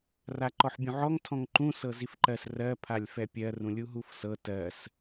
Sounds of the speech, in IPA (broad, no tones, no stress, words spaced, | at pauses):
raǃɔħbʲũʕɔŋ tʰɔ̃ŋǃũ sɤzifǃɜs rɜ pʰalʲfɛpʲɜ rũlʲuɦufsɤ tɜs